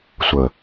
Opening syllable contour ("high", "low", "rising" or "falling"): low